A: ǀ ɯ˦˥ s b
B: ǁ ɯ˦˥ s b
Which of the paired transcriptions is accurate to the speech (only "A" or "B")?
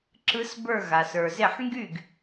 B